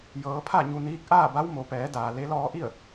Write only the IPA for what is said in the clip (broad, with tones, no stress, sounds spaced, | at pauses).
j ɤː˩˧ pʰ a˥˨ ɲ u˧ n iː˧˥ k̚ ʔ aː˥˨ b a˧˥ w m o˩˧ p ɛː˩˧ d aː˩ l e˧˥ l ɔː˧˥ ʔ i˥˨ ə̯